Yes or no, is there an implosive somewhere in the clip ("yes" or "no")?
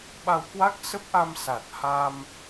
yes